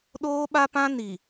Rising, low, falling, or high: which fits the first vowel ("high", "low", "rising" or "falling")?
high